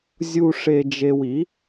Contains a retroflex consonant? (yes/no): yes